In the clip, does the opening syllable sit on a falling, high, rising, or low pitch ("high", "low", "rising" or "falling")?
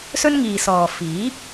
high